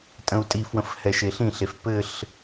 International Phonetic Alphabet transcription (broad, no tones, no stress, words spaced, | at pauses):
tʼə̃u̯tʼifwə̃f hɛʃeɬĩɬef pɘɬ